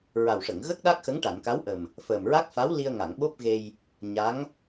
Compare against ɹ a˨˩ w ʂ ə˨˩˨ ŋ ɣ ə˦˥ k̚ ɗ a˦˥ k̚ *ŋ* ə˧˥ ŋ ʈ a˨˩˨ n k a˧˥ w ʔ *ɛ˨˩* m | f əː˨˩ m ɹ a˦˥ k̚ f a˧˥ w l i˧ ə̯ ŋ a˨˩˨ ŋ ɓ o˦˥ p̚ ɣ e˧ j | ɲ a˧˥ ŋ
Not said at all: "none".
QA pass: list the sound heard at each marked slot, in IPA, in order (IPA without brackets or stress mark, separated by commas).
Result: x, ə˨˩